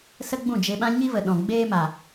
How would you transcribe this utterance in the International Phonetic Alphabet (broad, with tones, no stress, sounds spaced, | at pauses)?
s ə˦ ɡ͡b ũ˦˨ d͡ʒ e˧ ɓ ã˦ ɲ i˦ v ə˨ ɗ ɔ̃˨ ɡ͡b eː˦ m a˨